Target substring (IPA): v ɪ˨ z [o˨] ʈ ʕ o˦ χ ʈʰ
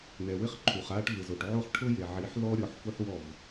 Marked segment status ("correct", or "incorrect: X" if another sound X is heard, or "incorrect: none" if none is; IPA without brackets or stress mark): correct